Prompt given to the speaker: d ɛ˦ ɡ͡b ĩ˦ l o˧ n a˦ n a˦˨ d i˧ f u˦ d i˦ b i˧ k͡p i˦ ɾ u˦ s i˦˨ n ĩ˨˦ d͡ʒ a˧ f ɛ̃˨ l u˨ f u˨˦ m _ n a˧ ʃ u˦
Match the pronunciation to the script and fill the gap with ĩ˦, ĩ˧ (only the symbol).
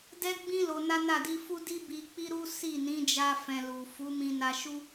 ĩ˧